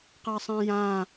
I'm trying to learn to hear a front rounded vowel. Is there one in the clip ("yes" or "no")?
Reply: no